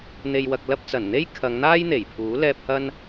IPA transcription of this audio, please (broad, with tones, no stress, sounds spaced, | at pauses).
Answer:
n̪ e˨ j w ɐ˨ k̚ l ɐ˧ p̚ t͡s ɐ˨˩ n n̪ e˥ j kʰ ɐ˨˧ ŋ n̪ aː˥ j n̪ e˨˩ j pʰ uː˨˥ l ɛː˧ p̚ h ɐ˥ n